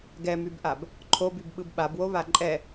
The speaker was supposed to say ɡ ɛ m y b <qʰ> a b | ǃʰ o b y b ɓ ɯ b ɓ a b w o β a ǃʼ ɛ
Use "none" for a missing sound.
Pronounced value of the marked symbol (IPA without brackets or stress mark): ʔ